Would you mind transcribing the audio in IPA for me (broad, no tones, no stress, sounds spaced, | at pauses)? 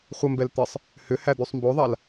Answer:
χʷ ə m b ɛ l t̪ ɪ sˤ | h ʏ h æ d̪ y sˤ m b o ðˤ a l